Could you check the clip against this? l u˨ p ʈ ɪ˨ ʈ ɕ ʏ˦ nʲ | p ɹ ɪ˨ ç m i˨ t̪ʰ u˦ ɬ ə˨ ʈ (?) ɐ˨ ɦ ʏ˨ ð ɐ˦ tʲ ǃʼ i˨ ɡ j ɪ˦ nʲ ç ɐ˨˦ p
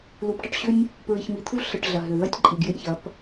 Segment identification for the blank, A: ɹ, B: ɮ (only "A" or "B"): B